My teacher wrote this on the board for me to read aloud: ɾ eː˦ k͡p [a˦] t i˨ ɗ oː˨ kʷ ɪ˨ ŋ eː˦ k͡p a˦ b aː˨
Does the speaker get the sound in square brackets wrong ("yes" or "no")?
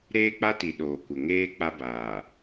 no